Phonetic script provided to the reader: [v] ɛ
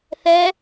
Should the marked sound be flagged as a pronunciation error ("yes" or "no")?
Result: yes